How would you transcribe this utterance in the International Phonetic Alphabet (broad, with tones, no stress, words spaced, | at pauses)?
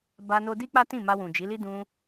ba˧no˧di˦ k͡pa˦tĩ˦˨ ma˧wũ˨d͡ʒi˨˦li˦ dũ˧